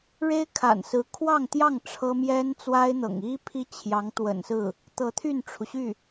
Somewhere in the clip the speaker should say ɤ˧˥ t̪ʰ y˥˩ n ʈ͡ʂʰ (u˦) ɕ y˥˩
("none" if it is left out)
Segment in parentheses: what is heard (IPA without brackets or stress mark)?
u˩